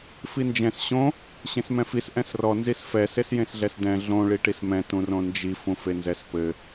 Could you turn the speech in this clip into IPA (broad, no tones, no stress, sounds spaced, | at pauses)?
f i n d͡ʒ ɛ̃ s ɕ õ | ɕ ẽ s m ɛ̃ f i s ʔ ɛ̃ s r ɔ n z i s f ɛ s e s j ẽ s ɮ ɛ s d ɛ̃ ɮ õ ɭ i ʈ i s m ɛ̃ t ũ r õ n d͡ʒ i f ũ f e n z ɛ s p ɘ